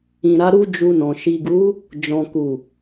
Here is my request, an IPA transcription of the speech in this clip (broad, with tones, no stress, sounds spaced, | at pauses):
ĩ˨ ɾ a˨˦ ɾ u˦ d͡ʒ u˧ n ɔ̃˨ ʃ i˨ ɡ u˨˦ | d͡ʒ ɔ̃˨ k u˨